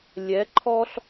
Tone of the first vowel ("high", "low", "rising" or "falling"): rising